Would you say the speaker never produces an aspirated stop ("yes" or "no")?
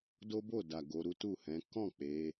yes